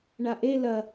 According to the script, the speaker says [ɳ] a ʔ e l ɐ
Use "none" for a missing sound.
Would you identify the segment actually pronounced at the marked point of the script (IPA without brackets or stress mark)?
ɳ